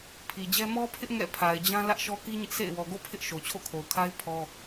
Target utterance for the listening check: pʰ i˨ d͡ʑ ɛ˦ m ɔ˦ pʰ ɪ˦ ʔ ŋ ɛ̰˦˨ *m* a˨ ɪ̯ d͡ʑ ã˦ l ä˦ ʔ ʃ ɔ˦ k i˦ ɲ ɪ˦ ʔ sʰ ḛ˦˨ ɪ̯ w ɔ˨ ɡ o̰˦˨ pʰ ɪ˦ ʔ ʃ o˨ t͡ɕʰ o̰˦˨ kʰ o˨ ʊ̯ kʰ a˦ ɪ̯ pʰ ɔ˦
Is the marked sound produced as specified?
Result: no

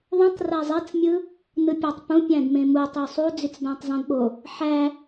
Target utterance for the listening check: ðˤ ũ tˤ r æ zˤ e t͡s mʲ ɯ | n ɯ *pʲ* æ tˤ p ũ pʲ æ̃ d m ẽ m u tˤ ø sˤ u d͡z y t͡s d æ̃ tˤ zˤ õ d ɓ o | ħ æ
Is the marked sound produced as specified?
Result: yes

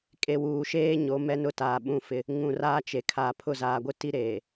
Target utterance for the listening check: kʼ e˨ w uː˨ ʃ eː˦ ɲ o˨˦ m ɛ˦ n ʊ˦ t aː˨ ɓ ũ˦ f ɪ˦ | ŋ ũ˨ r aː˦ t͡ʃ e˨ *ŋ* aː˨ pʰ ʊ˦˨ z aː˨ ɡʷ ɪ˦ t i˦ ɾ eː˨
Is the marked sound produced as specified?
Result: no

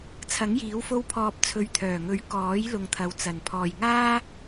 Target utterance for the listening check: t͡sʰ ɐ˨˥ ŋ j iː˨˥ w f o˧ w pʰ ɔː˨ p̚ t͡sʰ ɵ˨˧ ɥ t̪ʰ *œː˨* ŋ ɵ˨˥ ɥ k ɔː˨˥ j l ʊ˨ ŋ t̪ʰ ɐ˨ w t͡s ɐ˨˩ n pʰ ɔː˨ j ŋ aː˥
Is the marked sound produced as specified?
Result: no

